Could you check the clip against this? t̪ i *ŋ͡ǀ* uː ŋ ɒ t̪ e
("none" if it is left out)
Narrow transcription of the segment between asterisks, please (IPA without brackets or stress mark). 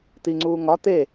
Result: ŋ͡ǀ